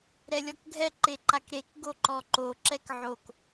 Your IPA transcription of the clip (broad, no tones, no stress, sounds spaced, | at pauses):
ɾ ɛ lʲ ɔ k ɡʱ ɛ ǃ e ǃ a k ɾ e k ɡ o ǃ ɔ ǃ o ǁ ɛ k ʕ o k